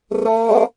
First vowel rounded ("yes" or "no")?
yes